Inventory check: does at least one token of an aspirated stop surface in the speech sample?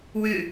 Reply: no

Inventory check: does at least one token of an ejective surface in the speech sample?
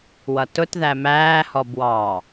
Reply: no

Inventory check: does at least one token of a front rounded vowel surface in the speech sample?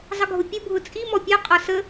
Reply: no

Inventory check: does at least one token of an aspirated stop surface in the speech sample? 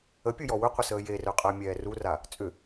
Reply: no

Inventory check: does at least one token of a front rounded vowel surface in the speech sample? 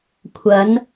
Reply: no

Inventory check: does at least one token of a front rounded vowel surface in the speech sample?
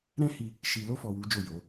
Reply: no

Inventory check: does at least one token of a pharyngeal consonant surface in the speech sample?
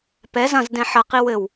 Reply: yes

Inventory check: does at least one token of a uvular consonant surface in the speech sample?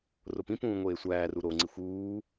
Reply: no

